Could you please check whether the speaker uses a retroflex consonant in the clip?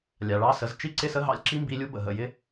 yes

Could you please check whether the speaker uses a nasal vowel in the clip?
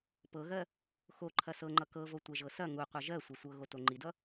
no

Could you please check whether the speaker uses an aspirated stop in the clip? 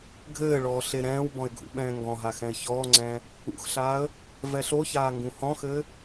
no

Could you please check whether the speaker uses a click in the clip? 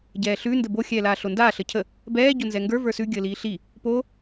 no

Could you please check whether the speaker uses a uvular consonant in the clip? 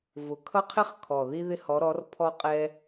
yes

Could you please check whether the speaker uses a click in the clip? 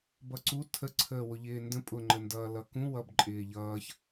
yes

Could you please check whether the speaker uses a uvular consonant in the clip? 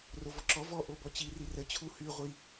yes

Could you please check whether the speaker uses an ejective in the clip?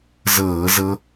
no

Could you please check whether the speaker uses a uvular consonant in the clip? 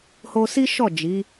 no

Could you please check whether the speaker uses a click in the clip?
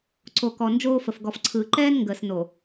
yes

